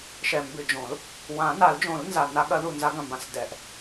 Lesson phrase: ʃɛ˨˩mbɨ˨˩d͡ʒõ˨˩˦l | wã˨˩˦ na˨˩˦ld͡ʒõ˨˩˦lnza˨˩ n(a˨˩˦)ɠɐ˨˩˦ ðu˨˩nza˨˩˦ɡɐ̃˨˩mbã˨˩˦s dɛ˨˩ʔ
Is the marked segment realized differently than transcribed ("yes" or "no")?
no